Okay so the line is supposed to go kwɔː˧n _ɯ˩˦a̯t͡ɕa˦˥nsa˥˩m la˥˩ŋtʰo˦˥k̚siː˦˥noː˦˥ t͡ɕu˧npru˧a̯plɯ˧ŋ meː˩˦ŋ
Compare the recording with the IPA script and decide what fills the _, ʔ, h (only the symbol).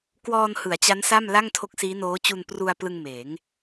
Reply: h